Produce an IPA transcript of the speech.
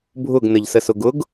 bʱ ʊ ɡ n ə ʎ s ə s ʊ ɡ ʊ ɡ

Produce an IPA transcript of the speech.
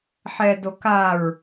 ħ ɛ d o k a ɹ

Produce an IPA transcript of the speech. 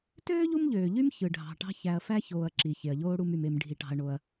t øː˥ ʎ u˦ m ʎ øː˩ ʎ y˦ m ç ɯ˩ ɖʱ ɑ̤˩ ʈ ɑ̤˦ ç æ˨ ɐ̯ f æ˥ ç oː˨ ɐ̯ ǁ i˩ ç e˩ ɐ̯ ʎ oː˥ ɽ u˦ m y˨ m e˨ m ɖʱ i˩ ʈ ɑ̤˩ ɐ̯ ɳ o˩ ɐ̯

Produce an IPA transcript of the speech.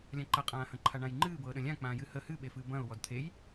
lʲ ã ǃ ɐ qʼ ãː h ɐ̃ ǃʰ a ɳ ã j ŋ͡ǃ ɨː b ɤː ɗ ə̃ lʲ ã k͡p ãː j ɨ h ə h ɨ ɓ e f ɨː b ɐ̃ ʊ̯ w ɔ d t̪ʰ e j

